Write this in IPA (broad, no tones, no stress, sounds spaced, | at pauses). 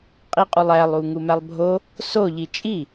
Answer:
qʼ i qʼ u lˠ æ lˠ u ŋ u m æ lˠ bʱ o | s o ʎ i t͡ʃʼ i